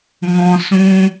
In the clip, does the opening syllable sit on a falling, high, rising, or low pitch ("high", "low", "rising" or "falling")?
high